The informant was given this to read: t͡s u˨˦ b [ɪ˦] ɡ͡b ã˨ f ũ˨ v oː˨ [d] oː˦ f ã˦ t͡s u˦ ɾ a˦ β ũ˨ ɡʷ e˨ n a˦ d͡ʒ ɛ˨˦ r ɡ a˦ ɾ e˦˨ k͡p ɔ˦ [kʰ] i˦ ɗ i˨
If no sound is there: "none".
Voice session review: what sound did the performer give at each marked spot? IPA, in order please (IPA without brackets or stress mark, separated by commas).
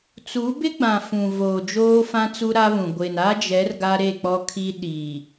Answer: ɪ˦, d͡ʒ, kʰ